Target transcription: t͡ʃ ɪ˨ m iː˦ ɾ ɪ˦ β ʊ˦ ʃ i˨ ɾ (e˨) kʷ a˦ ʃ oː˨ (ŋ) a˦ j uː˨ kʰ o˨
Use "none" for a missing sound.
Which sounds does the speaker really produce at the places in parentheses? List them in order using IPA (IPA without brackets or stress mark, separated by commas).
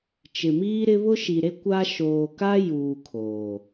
e˦, k